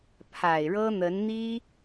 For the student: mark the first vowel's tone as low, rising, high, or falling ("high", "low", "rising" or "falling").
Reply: low